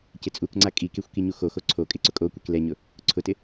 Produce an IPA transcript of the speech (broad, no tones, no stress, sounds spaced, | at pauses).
c ɪ t͡sʼ u k ŋ͡ǀ a kʼ i k e xʷ k i ɲ u x o x o ǀʰ o kʼ ɪ ǀ ʊ kʼ o kʷ e k l ɛ ɲ ʊ | ǀʰ ʊ t ɪ